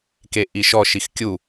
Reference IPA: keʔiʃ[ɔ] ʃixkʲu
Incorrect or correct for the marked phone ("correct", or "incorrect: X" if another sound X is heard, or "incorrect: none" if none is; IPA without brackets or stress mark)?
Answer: correct